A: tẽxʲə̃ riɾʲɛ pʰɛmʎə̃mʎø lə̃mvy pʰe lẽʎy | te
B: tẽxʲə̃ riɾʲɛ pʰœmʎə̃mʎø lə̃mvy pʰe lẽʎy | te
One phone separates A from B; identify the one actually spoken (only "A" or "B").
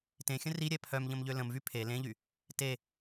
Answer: B